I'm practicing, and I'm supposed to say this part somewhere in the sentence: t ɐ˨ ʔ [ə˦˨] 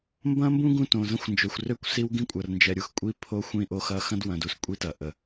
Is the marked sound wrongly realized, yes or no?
yes